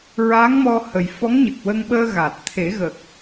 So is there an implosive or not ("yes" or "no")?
yes